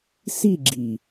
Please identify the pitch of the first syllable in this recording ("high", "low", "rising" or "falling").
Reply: falling